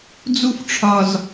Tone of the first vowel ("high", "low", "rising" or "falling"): high